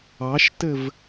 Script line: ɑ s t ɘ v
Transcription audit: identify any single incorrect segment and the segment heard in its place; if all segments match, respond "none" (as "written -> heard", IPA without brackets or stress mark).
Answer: s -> ʃ